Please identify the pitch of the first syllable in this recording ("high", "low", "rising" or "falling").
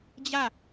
falling